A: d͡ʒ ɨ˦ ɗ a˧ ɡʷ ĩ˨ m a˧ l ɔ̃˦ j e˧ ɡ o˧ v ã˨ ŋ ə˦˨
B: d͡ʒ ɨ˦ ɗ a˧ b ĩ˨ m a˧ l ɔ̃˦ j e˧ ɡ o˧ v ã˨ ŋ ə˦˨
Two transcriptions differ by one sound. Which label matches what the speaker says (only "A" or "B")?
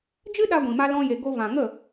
A